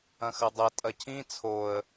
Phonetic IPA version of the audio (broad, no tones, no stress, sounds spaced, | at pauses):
ɐ̃ x ɐ dˤ ɐ tʼ ɐ cʰ ĩ t͡sʰ o ə̯